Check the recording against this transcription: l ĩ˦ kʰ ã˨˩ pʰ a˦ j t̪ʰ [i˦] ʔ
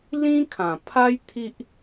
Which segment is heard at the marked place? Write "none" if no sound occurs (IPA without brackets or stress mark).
i˦